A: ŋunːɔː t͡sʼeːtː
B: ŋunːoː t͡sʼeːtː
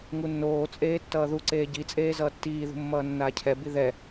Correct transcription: B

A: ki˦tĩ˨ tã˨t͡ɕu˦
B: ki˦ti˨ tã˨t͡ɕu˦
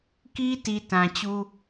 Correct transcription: B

